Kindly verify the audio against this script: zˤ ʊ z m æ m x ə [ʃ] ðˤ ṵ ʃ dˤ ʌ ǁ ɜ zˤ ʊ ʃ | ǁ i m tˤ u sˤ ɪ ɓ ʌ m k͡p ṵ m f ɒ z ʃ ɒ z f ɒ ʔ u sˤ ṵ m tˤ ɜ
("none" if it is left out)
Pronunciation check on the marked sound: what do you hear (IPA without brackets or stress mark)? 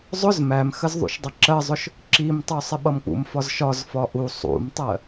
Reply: z